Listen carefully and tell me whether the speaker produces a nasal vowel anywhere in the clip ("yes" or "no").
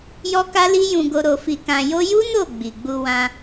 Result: yes